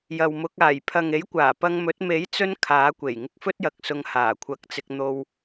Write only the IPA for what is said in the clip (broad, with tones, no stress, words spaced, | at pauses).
jɐ˨wmʊ˨˥k̚ aː˨˩j pʰɐ˨ŋe˨˥jkʷaː˨˩ pɐ˧ŋmɵ˨˥t̚ me˨˥j t͡sɵ˥n kʰaː˨˥kʷe˨˩j ŋɪ˧k̚fɵ˥t̚jɐ˨k̚sʊ˨˧ŋ haː˨˩kʷʰɐ˨˥k̚t͡sɪ˧k̚ n̪o˧w